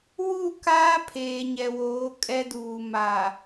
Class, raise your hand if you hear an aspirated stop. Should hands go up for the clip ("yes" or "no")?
yes